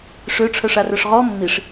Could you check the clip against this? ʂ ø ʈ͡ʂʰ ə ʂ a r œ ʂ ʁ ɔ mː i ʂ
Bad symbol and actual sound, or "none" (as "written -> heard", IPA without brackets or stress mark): ə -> œ